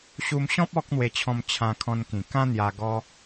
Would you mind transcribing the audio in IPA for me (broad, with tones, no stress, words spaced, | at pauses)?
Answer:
ɕu˧mɕɔ̃˦p̚ ɔ˦k̚n̪we˧t͡ɕʰɔ̃˧m t͡ɕʰã˧kʰɔ̃˧nkĩ˨˩ kã˦n̪ja˧ ɡɔ˧